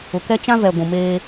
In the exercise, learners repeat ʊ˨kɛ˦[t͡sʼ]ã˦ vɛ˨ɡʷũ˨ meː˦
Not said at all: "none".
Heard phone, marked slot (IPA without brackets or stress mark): t͡ʃ